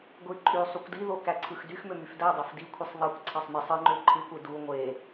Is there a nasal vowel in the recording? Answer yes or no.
no